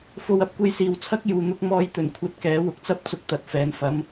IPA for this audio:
f o˧ w ɐ˨˥ p̚ kʷ e˧ j s iː˨ w t͡sʰ ɐ˥ k̚ j uː˨ n̪ ʊ˧ k̚ m ɔː˧ j t̪ ɵ˨˩ n kʷʰ ɐ˧ t̚ k ɛː˨˥ w ʊ˨ k̚ t͡s ɐ˥ p̚ t͡s ʊ˧ k̚ t̪ ɐ˨ t̚ f ɛː˨ n f ɐ˨˥ m

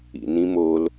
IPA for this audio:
ḭ n ĩ m o l

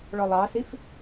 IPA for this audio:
ɭ ɔ lˠ ɑ s i f

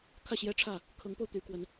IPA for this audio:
kʰ ä˥˨ ɕ j ɛ˦ ʈ͡ʂʰ ä˥˨ | kʰ ɤ˨˦ ŋ p o˧ ʊ̯ t̪ y˨˦ k w ə˨˦ n

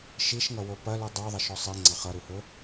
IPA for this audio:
ʃ i ʃ ŋ ʌ w o p ɐ l u dˤ o ðˤ ɐ ʃ ɔ sˤ i ŋ͡ǀ ɑ χ ʌ ɾ u h ɵ

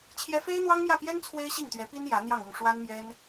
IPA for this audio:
t͡ɕʰ j ɛ˥ f e˥ ɪ̯ n̪ w ɑ˥ ŋ m j ä˥˩ p j ɛ˥ n t͡sʰ w e˥ ɪ̯ ɕ i˥˩ ŋ t̪ ɥ ɛ˧˥ p i˥ n j ä˧˥ n̪ j ɑ˥˧ ŋ ʊ˥˩ ŋ ʂ w a˥ n m j ɛ˥ n

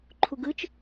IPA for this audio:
ǃʰ u ɡ ɯ t͡ʃ

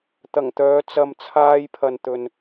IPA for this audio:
t̪ ɐ˨˩ ŋ t̪ œː˨˧ t͡s ɐ˧ m t͡sʰ aː˥ j pʰ ɐ˧ n t̪ ɵ˧ n

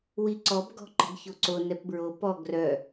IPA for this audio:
w i ǀ ɔ b ɡ ɔ̤ ǃ ə̤ ɡ ç o ǀ o n ɛ p b ɹ o p ɔ ɡ r œ

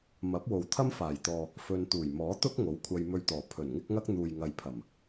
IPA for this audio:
m ɐ˨˥ p̚ w o˨ w t̪ʰ ɐ˥ m f aː˨˩ j t̪ ɔː˨ | f ɵ˧ n t̪ uː˨˩ j m ɔː˨˥ t̪ ʊ˥ k̚ ŋ o˨˥ w kʷʰ ɐ˧ j m ɵ˧ ɥ t̪ ɔː˨˩ pʰ ɵ˨˩ n ŋ ɪ˥ k̚ ŋ ɐ˥ k̚ n̪ uː˨ j ŋ ɐ˨ j pʰ ɐ˨˩ m

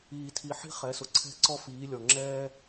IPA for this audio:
iː˨ tʰ i˨ ħ i̤˥ χ ɛ˨˦ s ʊ˨ ǀʰ ɛ̤˥˧ ǀ ɔ˥ f iː˨˦ lʲ ɔ˨ ŋ͡ǁ ɛː˥

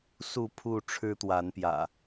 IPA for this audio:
s u˥˨ pʰ u˥˨ ʈ͡ʂʰ ɻ̩˦ t̪ w a˨˦ n p j ä̰˨˩

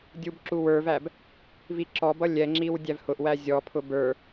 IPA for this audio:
dʲ u b ǁ u w ə˞ v æ b | v i ǁ ɔ b ʌ lʲ ɛ ŋ͡ǁ i w dʲ æ v h ʊ ʔ w æ zʲ ɔ pʰ ʊ b ə˞

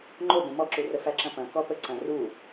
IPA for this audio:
ŋ͡ǃ o b õ m ɔ ǁ u r ə f æ ǁ ɐ̃ p ɐ̃ k ɔ p ə ǀ ɐ̃ r u

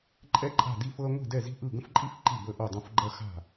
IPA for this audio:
ǃʼ ɛ˥ ǃʼ a̤˥˩ d i˥˧ f ɤ˥ ɐ̯ ŋʷ i̤˥˩ d ɛ˥˩ z i̤˥˧ ʔ ɯ˥˩ ɡ ə̃˥ f ǃʼ i˥ f ǃ i˥˩ b ə˥˧ ʔ o˥˩ dˤ ɐ̃˥˧ f ɡ͡ǃ ɐ˥ x a̤˥˩

